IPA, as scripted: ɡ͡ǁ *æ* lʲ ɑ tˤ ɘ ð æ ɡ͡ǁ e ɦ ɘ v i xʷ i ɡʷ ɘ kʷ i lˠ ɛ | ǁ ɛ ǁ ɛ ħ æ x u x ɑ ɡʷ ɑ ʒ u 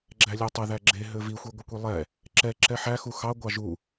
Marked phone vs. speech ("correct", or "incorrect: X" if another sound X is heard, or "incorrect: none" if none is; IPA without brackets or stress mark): correct